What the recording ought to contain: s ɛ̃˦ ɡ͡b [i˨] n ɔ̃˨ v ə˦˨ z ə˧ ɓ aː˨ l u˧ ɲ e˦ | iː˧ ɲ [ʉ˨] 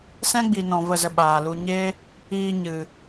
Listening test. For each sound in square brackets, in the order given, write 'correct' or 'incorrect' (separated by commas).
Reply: correct, incorrect